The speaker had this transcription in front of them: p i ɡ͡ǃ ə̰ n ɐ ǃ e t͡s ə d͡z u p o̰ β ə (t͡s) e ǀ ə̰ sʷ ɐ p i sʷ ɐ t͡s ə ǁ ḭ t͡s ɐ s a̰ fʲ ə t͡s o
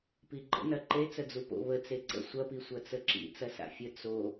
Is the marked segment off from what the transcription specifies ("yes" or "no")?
no